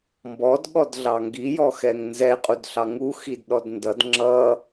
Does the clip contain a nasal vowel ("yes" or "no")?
no